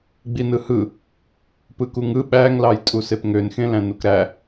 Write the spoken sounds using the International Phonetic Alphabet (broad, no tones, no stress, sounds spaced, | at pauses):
ɡ͡b i n ɯ h ɯ | p ɯ k u ŋ ɯ ɓ æ ŋ l ɑ j tʼ u s e p ŋ ø n x ẽ l æ̃ n u k ɾ æ